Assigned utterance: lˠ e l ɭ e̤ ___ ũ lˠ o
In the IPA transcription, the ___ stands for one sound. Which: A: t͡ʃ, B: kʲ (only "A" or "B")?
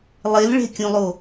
B